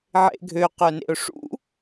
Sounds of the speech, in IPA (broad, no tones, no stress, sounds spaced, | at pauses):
ʕ ḛ ɡʱ ø q œ n ḛ ʊ̯ ʂ ṵ